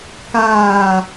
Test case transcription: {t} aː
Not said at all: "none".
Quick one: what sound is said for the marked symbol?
k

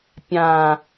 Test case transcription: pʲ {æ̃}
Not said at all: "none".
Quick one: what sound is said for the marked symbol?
ã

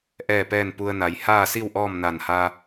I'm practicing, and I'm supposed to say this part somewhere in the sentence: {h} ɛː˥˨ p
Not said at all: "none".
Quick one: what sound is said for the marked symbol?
ʔ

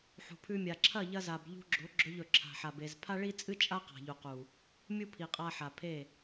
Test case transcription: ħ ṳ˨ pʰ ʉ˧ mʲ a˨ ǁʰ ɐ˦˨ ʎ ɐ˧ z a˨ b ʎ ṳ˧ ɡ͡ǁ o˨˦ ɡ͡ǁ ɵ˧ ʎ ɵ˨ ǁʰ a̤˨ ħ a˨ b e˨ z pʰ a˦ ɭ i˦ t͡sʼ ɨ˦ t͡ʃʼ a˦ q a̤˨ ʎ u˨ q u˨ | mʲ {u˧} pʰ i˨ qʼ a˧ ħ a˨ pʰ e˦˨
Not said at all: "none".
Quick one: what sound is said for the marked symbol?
u˦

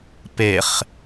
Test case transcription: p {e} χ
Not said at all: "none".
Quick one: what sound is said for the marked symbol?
e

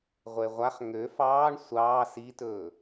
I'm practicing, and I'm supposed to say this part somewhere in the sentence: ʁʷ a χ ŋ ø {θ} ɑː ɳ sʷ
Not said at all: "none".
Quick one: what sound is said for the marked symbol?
f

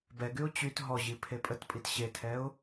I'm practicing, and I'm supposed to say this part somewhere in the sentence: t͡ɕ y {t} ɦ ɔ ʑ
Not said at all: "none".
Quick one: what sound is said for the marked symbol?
t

